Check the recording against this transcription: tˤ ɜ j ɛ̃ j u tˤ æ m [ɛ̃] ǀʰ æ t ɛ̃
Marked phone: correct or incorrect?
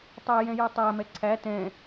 incorrect: ɛ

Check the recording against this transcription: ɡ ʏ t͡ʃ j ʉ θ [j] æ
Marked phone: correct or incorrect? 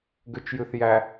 correct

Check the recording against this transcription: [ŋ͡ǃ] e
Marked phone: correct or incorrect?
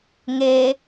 incorrect: ŋ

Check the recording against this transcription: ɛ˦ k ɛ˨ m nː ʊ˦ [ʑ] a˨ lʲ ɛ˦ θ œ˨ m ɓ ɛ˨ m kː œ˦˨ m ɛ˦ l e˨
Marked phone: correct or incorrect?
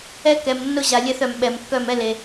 correct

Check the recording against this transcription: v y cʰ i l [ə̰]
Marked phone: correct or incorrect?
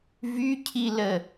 incorrect: ə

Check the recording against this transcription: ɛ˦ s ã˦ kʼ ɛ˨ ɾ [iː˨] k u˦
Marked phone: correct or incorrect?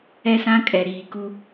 correct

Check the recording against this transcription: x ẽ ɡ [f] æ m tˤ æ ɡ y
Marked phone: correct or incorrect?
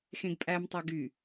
incorrect: pʼ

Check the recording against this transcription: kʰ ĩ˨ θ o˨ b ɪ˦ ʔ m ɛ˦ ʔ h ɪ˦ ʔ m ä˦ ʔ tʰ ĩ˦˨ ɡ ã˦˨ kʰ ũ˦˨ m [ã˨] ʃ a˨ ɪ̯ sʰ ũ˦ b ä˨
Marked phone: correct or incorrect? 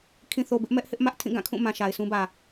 correct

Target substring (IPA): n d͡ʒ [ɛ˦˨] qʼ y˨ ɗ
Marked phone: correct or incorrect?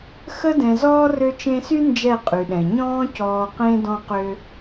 correct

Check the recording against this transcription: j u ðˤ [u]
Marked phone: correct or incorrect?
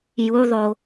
incorrect: o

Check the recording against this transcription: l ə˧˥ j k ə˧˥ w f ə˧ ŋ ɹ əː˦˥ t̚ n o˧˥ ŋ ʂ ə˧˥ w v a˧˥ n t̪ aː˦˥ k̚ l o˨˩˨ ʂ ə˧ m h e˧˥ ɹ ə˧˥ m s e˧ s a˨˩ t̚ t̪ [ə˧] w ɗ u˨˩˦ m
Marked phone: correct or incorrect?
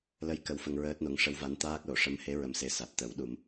incorrect: ə˨˩˦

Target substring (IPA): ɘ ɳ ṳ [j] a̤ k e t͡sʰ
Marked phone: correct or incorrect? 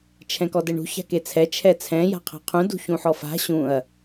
incorrect: ç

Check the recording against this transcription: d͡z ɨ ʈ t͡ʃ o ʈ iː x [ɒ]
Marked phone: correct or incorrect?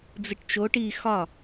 correct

